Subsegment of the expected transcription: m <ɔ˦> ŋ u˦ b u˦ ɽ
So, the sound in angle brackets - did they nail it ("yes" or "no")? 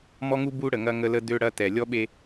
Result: yes